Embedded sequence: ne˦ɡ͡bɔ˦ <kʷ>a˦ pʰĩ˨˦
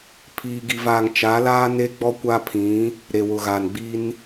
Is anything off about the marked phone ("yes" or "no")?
no